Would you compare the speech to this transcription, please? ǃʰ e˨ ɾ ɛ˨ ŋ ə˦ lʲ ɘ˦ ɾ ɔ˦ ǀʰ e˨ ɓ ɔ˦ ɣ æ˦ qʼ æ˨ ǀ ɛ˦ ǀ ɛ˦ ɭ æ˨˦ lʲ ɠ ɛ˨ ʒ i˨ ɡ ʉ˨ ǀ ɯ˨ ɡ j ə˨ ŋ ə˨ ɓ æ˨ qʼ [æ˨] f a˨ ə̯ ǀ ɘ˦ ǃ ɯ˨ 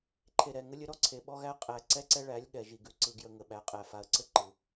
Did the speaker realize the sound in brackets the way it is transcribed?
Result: yes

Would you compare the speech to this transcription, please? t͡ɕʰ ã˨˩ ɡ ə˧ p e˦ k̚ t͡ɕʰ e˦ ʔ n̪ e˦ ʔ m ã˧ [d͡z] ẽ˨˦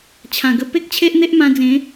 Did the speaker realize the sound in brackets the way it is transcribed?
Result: yes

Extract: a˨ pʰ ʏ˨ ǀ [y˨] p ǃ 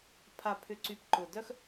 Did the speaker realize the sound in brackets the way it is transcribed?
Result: yes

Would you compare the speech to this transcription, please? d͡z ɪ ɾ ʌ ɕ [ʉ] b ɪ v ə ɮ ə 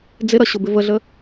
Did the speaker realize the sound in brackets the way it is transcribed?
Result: no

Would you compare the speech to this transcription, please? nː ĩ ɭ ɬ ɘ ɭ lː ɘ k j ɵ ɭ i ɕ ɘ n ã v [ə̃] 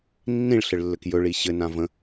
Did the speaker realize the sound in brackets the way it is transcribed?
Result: yes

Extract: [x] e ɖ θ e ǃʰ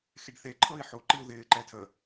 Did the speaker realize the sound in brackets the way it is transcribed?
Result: yes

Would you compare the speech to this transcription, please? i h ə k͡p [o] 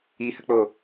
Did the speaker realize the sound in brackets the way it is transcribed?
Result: yes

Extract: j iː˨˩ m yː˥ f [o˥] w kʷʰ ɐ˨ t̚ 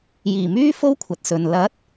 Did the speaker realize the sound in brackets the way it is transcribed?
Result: yes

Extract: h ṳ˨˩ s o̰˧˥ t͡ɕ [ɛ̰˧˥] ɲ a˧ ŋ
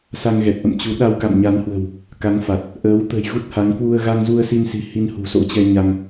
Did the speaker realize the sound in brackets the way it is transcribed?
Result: no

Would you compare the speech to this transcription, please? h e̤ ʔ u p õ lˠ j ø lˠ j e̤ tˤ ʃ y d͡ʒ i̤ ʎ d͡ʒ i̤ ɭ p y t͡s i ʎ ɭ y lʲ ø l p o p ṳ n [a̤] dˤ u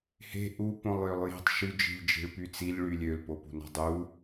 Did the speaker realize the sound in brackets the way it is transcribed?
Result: yes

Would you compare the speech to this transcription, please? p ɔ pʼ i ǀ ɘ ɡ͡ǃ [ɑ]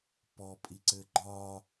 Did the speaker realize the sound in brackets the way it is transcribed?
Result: no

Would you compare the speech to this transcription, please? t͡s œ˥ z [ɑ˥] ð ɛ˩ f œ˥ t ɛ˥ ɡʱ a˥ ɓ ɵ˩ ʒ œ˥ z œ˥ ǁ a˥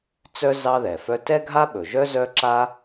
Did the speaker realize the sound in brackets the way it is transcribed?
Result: yes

